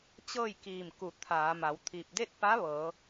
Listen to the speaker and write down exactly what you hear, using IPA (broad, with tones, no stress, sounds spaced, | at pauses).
t͡ɕ ɤː˥˨ j k iː˧˩ m k u˧˩ t̪ʰ aː˩˧ m a˩˧ w t̪ʰ i˧˩ p̚ d e˥˨ t̚ p a˧˥ ʋ ɤː˩˧